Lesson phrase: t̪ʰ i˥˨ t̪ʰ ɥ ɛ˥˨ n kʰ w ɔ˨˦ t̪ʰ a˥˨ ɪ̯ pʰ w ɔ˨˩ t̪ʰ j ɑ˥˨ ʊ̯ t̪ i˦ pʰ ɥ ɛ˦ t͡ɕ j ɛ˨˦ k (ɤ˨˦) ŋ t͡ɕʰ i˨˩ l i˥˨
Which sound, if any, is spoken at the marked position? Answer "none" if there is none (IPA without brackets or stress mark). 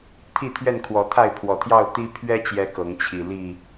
ɤ˨˦